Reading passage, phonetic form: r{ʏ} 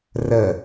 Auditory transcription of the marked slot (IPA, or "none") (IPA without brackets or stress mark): ə